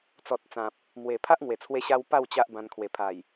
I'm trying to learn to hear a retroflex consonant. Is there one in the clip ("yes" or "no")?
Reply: no